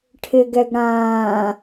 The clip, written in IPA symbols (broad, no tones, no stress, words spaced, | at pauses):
ʈʰɪɡɛɡ ɽãː